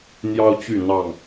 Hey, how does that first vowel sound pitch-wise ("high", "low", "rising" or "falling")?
high